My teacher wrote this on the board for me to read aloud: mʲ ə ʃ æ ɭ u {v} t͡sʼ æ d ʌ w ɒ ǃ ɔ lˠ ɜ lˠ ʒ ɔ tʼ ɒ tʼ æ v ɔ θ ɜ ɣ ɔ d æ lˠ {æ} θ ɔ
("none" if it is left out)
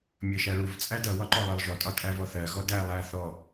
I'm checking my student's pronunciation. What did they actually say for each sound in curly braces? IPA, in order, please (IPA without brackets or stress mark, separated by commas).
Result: v, æ